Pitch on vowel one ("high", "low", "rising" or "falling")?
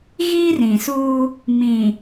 high